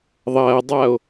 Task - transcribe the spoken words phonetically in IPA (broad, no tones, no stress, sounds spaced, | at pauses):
ðˤ ɐː dˤ a o̯